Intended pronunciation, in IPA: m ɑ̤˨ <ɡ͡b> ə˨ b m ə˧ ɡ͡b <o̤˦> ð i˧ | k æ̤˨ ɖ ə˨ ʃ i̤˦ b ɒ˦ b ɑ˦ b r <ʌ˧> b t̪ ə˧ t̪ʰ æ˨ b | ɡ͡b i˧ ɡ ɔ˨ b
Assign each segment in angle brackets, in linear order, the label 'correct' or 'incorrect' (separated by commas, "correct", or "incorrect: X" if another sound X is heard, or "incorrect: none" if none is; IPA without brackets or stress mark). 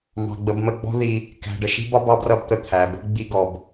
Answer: correct, incorrect: ɔ̤˦, correct